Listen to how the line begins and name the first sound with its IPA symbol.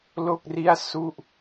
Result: l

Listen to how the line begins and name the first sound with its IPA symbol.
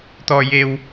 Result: t̪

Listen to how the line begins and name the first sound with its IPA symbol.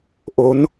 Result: ʔ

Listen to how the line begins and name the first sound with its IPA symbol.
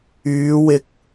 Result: yː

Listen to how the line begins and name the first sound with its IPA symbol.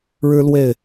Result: ɻ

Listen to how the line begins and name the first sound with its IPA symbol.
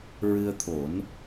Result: ɹ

